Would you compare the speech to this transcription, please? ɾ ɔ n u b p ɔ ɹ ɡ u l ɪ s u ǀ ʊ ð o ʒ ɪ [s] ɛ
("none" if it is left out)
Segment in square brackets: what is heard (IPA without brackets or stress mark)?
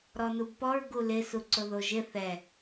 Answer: θ